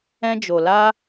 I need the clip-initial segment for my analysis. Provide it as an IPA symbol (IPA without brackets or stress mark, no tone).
ɛ̃